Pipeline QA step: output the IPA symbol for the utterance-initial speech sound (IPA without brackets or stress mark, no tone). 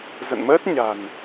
z